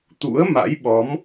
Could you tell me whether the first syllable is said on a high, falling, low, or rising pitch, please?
rising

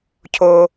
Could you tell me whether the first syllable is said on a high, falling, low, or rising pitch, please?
high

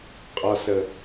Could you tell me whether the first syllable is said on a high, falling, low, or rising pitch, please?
low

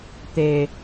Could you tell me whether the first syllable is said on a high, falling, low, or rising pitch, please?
low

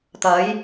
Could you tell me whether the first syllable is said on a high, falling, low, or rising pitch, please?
rising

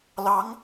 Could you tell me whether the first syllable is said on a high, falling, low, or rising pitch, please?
rising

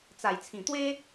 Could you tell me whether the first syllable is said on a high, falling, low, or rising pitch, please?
low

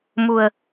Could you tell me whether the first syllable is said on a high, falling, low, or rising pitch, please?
low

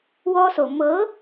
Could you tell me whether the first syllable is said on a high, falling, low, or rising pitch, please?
high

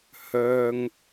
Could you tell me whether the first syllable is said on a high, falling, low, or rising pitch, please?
low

